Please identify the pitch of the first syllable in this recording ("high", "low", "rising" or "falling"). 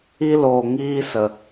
high